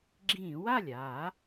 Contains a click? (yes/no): yes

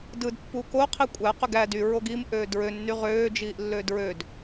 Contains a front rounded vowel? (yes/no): yes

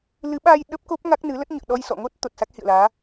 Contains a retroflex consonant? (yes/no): no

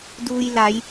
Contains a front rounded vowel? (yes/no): no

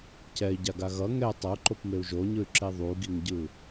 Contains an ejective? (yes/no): no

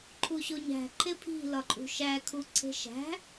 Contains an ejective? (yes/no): yes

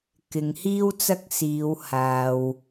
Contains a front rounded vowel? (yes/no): no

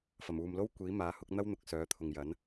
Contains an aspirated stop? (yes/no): yes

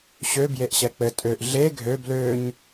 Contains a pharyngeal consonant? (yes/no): no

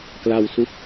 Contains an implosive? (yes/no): no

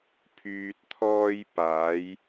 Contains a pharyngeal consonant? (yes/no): no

